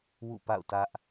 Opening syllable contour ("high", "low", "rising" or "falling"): falling